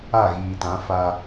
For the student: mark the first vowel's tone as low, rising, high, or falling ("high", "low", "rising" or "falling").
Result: falling